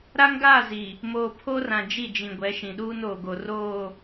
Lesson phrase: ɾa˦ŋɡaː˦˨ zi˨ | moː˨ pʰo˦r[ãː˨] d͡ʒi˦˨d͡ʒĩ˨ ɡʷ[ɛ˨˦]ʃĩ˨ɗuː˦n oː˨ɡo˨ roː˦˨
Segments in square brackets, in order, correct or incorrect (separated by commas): incorrect, correct